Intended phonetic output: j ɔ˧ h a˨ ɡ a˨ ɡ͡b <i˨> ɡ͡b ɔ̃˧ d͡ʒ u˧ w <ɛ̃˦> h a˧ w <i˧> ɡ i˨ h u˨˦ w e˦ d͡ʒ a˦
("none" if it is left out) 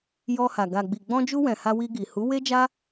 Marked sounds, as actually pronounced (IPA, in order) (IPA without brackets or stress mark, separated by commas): i˨, ɛ̃˨, i˧